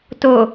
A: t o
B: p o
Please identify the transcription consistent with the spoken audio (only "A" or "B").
A